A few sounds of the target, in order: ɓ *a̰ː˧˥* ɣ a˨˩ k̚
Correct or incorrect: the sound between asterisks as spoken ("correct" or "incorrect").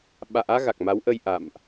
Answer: correct